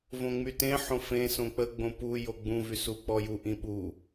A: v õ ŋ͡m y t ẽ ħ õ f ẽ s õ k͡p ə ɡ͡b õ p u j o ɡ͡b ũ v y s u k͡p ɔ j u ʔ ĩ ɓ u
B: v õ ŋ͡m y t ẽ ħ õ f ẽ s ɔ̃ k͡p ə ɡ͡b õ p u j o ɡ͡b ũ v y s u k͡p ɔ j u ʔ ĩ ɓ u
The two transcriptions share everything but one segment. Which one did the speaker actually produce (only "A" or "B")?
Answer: A